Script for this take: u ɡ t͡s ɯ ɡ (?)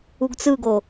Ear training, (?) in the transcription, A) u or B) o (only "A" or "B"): B